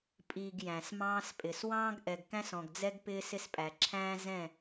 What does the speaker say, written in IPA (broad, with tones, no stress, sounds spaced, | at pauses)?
pʼ i˨ ɡ j æ̃˨ s m ɑ̃ː˦ s pʼ ɪ˨ s w ɑ̃ː˦ ɡ ʔ ɛ˨ ɡ k æ̃˦ s ɔ̃˨ ɡ d͡z ɛ˦ ɡ p ɪː˦ s ɪ˦ s pʼ æ˨ ǁʰ æ̃ː˦ z ɛ̃˦˨